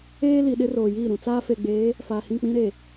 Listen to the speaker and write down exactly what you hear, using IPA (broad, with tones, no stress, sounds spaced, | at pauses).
eː˦ l i˨ ɗ ɪ˦ r oː˨ j iː˦˨ ɾ ũ˨ t͡s aː˦ f e˨ ɡ͡b eː˨˦ | f aː˨ h ĩ˦˨ k͡p ĩ˦ ɾ e˨